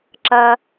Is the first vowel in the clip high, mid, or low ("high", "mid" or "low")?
low